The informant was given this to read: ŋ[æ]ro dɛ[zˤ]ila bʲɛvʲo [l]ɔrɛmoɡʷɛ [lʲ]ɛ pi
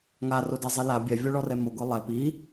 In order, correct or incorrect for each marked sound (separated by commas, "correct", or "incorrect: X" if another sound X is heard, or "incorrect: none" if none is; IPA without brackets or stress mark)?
incorrect: a, correct, incorrect: ɭ, incorrect: lˠ